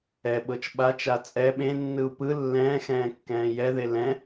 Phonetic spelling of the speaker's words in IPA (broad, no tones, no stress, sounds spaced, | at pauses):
ɛ ɓ ɤ t͡ʃ ɓ a t͡ʃ a t͡sʼ ɛ ɓ ẽ nː ɯ u̯ p ɯ lː ɛ̃ː x ɛ̃ː kː ɛ̃ː j ɛ ð e l ɛ̃